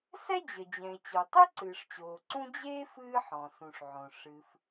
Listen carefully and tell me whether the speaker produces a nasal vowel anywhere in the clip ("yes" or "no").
yes